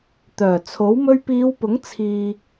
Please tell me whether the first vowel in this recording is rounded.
yes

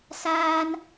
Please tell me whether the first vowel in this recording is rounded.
no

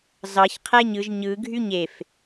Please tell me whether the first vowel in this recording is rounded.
no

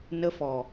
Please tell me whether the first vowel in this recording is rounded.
no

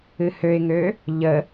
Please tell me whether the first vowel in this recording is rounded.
no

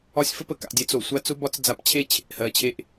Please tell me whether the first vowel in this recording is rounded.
yes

